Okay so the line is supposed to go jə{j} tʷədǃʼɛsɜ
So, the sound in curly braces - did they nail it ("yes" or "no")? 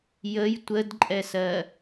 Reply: yes